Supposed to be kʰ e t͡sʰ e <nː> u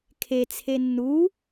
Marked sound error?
no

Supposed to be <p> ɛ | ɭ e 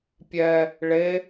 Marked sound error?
yes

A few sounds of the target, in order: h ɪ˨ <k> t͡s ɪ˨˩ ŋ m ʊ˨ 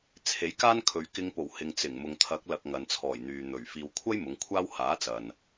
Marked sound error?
yes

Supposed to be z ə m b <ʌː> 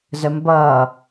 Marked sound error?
no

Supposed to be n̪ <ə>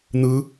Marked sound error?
yes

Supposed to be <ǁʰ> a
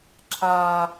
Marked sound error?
no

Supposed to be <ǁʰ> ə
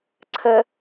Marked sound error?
yes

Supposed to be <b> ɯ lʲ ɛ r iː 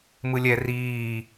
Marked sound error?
yes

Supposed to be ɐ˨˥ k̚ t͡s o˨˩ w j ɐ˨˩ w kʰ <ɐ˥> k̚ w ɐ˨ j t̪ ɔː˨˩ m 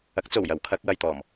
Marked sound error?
yes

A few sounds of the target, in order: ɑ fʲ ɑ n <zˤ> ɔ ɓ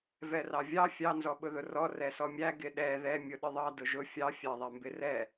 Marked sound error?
yes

